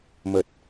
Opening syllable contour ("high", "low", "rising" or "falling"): low